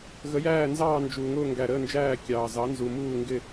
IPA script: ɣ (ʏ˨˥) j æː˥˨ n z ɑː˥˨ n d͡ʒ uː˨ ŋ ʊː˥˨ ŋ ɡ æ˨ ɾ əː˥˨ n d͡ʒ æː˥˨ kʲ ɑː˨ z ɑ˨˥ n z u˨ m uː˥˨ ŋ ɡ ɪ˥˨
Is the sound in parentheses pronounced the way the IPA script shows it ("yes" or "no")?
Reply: no